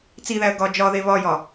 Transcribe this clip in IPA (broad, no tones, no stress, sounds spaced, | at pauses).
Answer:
t͡s i ð æ ə̯ ɡ ɒ d͡ʒ ɒ ð e β ɒ j ɒ